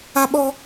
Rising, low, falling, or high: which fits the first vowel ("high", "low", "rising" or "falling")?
high